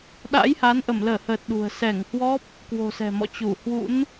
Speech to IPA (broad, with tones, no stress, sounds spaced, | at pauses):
ɗ a̰˧˥ j h a˨˦ n ʔ ə˧˩ m l əː˧˩ h əː˨˩ t̚ ɗ ṳ˨˩ ə̯ s ɛ˧˩ ŋ h w ɔ˦˥ p̚ | k w o̤˨˩ s ɛ̤˨˩ m ɔ̰˧˨ t͡ɕ u˧˩ h w ṵ˧˥ n